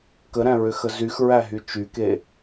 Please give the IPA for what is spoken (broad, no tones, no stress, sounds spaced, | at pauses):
k ə ɾ æ̃ ɹ ʏ x ə z y x ɹ æ ɦ y t͡ʃ y k e